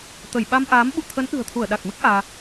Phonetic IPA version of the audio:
t̪ ə˧˩ j ɓ a˧ m ʔ aː˨˦ m ɓ ṵ˧˨ t̪ʰ ə˨˦ n ʔ ɨ̤˨˩ ə̯ t̪ʰ u˧˩ ə̯ ɗ a˨˩ k̚ m ɨ˦˥ k̚ ʔ aː˧

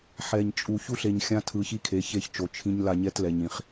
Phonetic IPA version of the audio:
ħ ɛ˨ ɲ t͡ʃʼ u˨ ç u˦ ɬ e˨ ɲ xʲ ã˦ tʰ ɯ˨ ç i˦ kʰ e˨˦ ç e˦ ç t͡ʃ o˨ t͡ʃʰ ĩ˦ ɲ l a˦˨ ɲ ɛ˦ t l ɛ˨ ɲ ĩ˨ χ

